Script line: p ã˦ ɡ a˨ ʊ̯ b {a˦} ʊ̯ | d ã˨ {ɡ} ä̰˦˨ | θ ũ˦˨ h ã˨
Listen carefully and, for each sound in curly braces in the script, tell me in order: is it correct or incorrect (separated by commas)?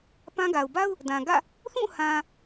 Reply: correct, correct